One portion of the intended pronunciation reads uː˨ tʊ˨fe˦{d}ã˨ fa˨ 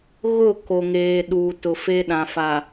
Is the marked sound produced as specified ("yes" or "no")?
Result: no